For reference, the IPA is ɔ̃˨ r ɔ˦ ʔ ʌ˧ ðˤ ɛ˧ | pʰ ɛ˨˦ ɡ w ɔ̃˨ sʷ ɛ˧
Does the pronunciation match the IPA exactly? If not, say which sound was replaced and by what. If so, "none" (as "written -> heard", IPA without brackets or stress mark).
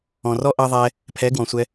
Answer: none